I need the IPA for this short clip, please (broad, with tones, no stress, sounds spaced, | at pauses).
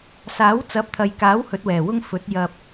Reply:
s aː˨˥ w t͡s ɐ˨˥ p̚ t̪ʰ ɐ˨ j k aː˨˥ w h ɵ˨˥ t̚ w ɛː˨˩ w ʊ˥ ŋ f ɵ˨˥ t̚ j ɐ˧ p̚